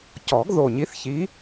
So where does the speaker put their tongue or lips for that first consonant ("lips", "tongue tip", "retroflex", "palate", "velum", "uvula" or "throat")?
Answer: palate